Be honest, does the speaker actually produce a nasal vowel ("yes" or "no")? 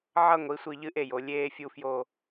no